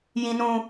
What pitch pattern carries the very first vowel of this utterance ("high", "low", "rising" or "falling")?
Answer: high